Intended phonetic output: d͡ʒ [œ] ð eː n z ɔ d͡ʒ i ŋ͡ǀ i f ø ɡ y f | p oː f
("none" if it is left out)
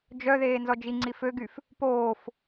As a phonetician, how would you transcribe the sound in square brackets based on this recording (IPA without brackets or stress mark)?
œ